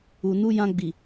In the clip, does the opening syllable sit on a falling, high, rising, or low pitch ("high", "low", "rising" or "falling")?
low